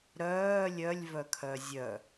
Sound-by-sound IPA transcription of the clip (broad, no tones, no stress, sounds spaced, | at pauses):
ɾ œː lʲ œ lʲ v œ kʰ œ zʲ œ